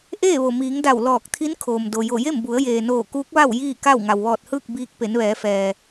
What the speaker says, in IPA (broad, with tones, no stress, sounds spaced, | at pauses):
ʔ eː˥˨ ʋ o˩ m iː˩˧ ŋ d a˧˩ w l ɔː˧˩ k̚ t̪ʰ i˧˥ n kʰ oː˩ m d o˩ j o˧˩ j e˥˨ m b u˩˧ ə̯ j eː˩ n oː˧˩ k uː˧˥ k̚ ʋ a˥˨ w j iː˥˨ k a˥˨ w ŋ a˩ w ʋ ɔː˧˩ t̚ h ɯː˥˨ k̚ b iː˧ k̚ p e˩˧ n ʋ ɛː˩˧ f ɛː˩